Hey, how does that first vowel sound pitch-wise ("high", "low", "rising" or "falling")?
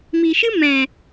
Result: low